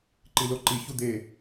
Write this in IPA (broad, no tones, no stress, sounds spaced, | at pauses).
ǃ i l o ǃ i ç u d̪ e